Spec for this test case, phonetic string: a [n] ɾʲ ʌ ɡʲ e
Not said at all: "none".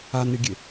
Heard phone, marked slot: n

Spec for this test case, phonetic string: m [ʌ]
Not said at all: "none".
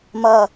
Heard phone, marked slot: ʌ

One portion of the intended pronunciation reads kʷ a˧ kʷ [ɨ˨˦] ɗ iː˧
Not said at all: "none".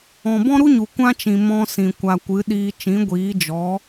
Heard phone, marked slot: ɨ˨˦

